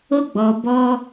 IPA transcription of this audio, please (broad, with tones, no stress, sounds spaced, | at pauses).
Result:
o˦ ɡ͡b ɔ˧ b ɔ˦